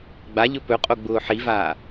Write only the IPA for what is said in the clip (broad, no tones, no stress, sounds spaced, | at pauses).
ɡ͡b a ʎ ɵ p ɵ qʼ o ɡ͡b ʊː ħ i v aː